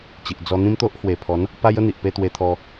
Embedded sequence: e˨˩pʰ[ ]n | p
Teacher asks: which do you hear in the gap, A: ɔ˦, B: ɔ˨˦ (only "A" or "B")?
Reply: B